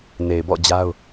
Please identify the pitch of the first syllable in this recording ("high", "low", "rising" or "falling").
low